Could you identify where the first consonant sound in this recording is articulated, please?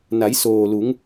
alveolar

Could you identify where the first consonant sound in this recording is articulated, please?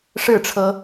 retroflex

